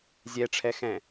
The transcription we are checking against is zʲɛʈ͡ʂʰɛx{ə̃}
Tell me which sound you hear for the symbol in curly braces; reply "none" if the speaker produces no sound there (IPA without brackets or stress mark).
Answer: ɛ̃